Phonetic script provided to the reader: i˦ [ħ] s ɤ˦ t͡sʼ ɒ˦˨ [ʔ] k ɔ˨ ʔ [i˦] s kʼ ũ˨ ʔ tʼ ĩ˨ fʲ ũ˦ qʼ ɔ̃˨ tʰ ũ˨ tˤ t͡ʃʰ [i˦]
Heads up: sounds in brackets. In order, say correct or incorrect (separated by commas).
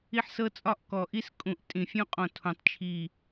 correct, correct, correct, incorrect